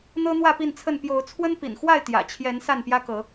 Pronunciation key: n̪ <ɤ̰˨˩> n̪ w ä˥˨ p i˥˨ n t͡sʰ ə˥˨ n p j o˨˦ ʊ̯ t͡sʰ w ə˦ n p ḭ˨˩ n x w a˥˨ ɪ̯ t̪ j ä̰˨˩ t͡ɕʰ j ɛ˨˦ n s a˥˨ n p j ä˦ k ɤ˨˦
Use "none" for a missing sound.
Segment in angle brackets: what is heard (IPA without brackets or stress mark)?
ɤ˦